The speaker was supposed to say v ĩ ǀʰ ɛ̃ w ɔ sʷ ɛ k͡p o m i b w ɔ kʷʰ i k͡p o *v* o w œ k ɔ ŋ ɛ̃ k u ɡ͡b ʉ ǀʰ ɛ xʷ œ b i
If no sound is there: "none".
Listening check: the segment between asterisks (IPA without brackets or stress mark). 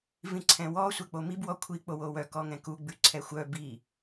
w